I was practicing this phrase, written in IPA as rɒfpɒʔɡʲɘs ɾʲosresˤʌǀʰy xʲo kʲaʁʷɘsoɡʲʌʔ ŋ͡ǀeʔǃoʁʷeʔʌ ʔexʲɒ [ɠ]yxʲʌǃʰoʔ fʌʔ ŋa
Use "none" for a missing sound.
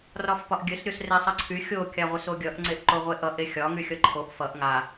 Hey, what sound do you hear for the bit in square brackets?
ŋ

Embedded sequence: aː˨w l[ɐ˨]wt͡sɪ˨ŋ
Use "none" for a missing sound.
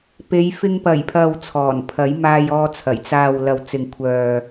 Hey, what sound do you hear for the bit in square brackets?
ɐ˨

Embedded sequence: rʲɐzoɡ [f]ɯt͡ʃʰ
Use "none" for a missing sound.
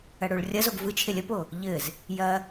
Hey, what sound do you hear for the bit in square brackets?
v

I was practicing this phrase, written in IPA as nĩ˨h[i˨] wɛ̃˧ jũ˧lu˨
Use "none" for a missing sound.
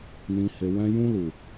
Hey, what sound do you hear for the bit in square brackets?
e˨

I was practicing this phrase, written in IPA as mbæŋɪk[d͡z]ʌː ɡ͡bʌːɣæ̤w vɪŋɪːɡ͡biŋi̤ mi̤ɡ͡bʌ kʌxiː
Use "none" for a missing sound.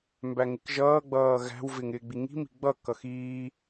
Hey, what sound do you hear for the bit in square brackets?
ʒ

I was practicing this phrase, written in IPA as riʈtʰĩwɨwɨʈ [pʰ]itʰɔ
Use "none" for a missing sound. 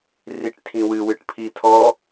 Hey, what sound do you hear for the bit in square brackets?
pʰ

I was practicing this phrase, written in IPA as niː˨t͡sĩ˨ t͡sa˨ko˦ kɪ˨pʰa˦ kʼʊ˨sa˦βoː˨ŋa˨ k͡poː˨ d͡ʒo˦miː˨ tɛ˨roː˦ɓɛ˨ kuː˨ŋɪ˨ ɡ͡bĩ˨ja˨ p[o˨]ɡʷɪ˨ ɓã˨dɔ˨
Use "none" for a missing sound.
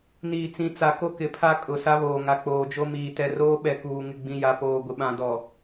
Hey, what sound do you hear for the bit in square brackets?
oː˨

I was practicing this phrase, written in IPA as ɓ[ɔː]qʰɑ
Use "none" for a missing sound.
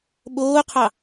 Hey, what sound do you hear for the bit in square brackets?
oː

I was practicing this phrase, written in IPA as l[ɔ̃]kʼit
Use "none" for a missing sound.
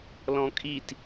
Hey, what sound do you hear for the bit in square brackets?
ɔ̃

